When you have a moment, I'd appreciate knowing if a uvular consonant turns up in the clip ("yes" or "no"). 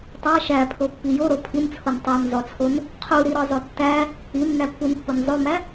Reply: yes